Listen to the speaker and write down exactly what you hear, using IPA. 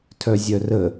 tʰ œ zʲ œ r ə

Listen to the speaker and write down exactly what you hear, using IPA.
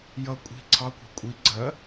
j ʌ kʷʼ i̤ ǀʰ ɑ kʷ æ̤ kʷʼ i ɡ͡ǀ ɜ

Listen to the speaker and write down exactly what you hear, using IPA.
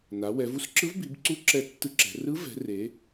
n a˩˧ w ɛ˩˧ v u˧˥ s ǁ ɯ˧˥ v b i˩˧ b ǀ u˧˥ ǁ ɛ˧˥ tː ɯ˧˥ ǁ ɛ̤˩˧ r ɯ˧˥ v ɛ̤˩˧ r e˩˧

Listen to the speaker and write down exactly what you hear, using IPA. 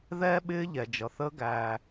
ð ɛː˦ ɓ ɪː˦ ʎ ɛ˨ d͡ʒ ʌ˨ θ əː˦ ɡ æː˧

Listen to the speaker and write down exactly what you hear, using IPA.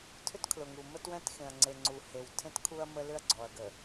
tʰ ʏ˦ t kʰ l ʊ˨ ŋ u˨ m ə˦ t w ɛ̃˦ t x ẽ˨ ɐ̯ ŋ͡ǀ e˨ ŋ͡ǀ u˨ h e˨ w tʰ ẽ˦ t kʰ u˦ ɐ̯ m ə˦ l ʏ˦ ɐ̯ ɡ͡ǀ ɔ˨ ɐ̯ ɡ ə˨

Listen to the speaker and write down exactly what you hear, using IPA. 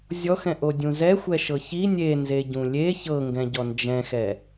zʲ ɔ x ɛ̃ ʔ o dʲ ũ z ɛ xʷ ɛ ʃ ɤ ç i nʲ e n z e ɟ ũ lʲ e ç ɤ ŋ ɡ ɛ̃ ɟ ɔ n d͡ʒ ɛ̃ x ɛ

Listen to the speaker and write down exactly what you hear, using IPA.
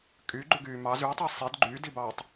kʼ y ɡ͡ǃ ʉ ɡ yː m ɑ z y tˤ i sˤ i d ɡ͡ǃ yː d i b ɑː tˤ

